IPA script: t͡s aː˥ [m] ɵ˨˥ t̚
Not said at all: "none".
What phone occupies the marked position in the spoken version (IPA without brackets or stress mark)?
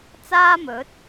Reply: m